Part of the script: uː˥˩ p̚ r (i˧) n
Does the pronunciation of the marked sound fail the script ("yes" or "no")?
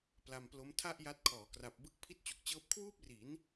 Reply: yes